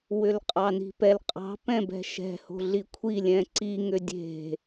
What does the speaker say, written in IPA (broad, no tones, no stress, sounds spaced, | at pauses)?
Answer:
w ʏ l qʼ ɑ n i̤ p ɛ l qʼ ɑ̤ p ɛ̃ b ɛ̤ ʃ ɛ̤ h o̤ ɮ i kʷʰ i lʲ ɛ̃ ǀ i ŋ ʏ dʲ e̤